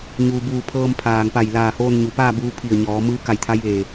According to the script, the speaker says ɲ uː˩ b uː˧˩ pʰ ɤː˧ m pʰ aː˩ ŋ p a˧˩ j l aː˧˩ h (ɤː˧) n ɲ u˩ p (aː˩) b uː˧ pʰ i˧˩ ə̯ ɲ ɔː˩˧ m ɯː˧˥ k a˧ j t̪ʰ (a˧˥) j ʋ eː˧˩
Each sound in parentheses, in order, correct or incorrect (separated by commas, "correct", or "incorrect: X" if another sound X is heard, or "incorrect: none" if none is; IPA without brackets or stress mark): incorrect: oː˧, incorrect: aː˥˨, correct